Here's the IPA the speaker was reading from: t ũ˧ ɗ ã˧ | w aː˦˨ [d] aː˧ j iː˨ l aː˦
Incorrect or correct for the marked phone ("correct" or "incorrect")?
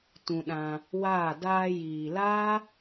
correct